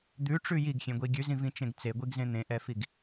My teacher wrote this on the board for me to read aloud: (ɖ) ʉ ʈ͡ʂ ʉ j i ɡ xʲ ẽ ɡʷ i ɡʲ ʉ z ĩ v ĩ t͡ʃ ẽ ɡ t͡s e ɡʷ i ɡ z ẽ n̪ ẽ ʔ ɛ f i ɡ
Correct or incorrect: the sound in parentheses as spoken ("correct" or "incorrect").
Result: incorrect